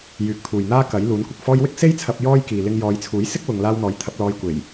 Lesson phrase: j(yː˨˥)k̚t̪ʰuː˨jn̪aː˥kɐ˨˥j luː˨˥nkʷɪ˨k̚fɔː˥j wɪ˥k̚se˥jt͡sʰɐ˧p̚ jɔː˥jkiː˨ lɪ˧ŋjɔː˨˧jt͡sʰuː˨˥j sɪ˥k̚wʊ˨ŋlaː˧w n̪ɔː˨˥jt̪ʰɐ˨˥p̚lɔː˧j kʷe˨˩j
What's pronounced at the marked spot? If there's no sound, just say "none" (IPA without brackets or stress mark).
yː˨˥